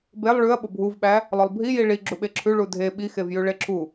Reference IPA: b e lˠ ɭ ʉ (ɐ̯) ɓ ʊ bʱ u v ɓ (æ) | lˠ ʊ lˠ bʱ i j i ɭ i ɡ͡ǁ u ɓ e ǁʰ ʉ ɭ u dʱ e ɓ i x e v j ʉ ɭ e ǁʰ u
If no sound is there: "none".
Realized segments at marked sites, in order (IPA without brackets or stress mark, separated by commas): ɐ̯, æ